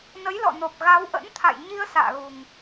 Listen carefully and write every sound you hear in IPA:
nə˨˦jlɔ̰˧˨no˨˩p̚ ɣa˨˦wʔə̰˧˥nt̪ʰa̰˧˨jɲi˧ə̯ sa̰ː˧˨ɣu˨˩ŋ

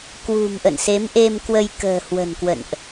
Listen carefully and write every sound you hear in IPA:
kwṳ˨˩m ʔə̰˧˨nse˨˦mʔe˧m kwə˧jkə̤ː˨˩ hwə̤˨˩nkwə̰˧˨nʔ

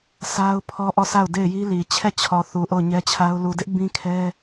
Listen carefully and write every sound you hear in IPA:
sʰa˦ʊ̯pʰɔ˦ ʔɔ˦˨sʰa˦˨ʊ̯de˦˨ɪ̯ji˦ li˨ t͡ɕʰɛ˦˨t͡ɕʰɔ˨ θu˨ʔo˦˨ʊ̯ɲɛ˦t͡ɕʰa˦ʊ̯ lu˨dɪ˦ʔ bĩ˦kʰɛ˦

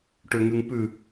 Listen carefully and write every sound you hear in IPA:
ʈøŋʉŋpʉ

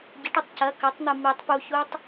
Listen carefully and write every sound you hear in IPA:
ɟɨʈɨtˤ cɐ kɐtˤn̪ɨ mitˤ puçutˤ

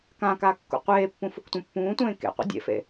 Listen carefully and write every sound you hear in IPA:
kãka kːṵqʷeːpːũ fuktʷẽpːũːtʷẽː kḛqʷḛ dʲḛfḛ

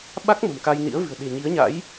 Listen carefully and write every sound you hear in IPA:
ɓa˦˥k̚ mə̤˨˩mka˧jnḭ˧˥ə̯vɨ̤˨˩ə̯ ɗe̤˨˩ɲi˨˦ə̯ɲa̰˧˥j

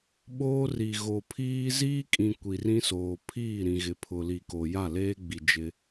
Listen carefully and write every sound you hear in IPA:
ɓoː˦ri˨ ɣo˨pʰiː˦ ziː˦kʼĩ˨ kʷi˨rĩ˦soː˨ pʰiː˦˨ɾĩ˨ɣɪ˨pʰʊ˨ li˨ko˨ja˦˨ leː˦ɡ͡bi˨ d͡ʒɪ˦

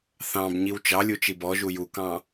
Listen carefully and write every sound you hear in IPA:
θɑ̃b ɲiwt͡ʃɑlʲu t͡ʃibɔʒu jukɑ̃

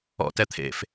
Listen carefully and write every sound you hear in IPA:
ɔ̰ tɛt̪ʰḛf

